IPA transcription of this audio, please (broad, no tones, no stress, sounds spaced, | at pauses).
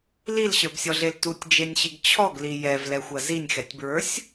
l i l ɕ ə˞ b sʲ ɔ ɮ e l t u tʲ d͡ʒ e nʲ ɕ i ɡ t͡ɕʰ ɔ ɡ l i j ɛ v l ɛ xʷ ɐ z i nʲ x ɛ tʲ b ɹ ə˞ sʲ